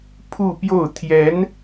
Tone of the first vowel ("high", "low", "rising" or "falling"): falling